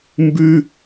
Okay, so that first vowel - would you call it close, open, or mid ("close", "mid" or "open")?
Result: close